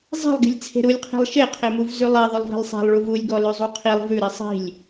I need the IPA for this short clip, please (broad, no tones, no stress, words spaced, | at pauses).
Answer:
zˤe̤lˠɡi̤lʲ t͡sʰe̤ɾulʲqʰi̤lˠ ʃeqʰemuv zʉlˠe ðˤɵlˠvi̤lˠsˤe̤lˠ ɭuvulʲɡɔ lʉzˤuqʰilˠ vʉɾi sˤi̤lʲ